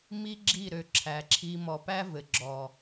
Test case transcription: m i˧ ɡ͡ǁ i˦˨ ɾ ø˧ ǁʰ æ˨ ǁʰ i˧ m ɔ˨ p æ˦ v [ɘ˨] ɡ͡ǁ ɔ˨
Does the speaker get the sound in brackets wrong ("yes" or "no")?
no